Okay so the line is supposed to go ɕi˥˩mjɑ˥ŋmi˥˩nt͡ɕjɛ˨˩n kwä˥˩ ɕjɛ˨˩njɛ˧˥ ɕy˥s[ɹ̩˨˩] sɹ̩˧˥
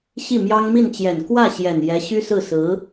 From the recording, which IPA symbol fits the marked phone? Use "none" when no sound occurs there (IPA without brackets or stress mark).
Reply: ɹ̩˥˩